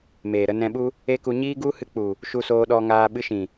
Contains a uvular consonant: no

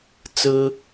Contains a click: no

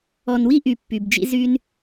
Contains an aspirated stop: no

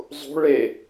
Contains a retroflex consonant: yes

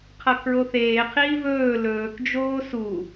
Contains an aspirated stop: yes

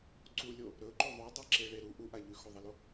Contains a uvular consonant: no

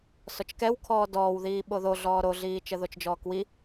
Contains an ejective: no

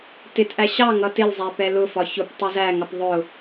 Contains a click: no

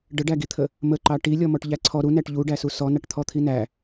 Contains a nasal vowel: no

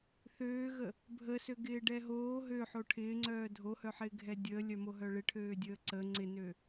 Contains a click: yes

